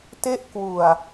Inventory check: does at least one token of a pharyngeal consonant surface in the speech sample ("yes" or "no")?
no